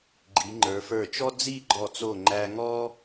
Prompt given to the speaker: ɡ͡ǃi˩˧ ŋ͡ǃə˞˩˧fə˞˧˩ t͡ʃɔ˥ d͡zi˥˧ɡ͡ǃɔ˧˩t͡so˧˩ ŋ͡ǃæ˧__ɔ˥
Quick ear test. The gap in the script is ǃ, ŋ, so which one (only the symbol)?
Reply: ŋ